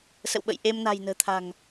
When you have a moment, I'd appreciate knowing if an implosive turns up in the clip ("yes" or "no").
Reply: yes